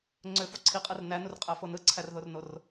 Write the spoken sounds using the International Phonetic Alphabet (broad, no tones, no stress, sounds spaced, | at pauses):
ŋ͡ǀ ø f o ǀʰ i qʼ ɯ r n æ n u r qʼ æ f o n ɯ ǀʰ æ r ð o r n o r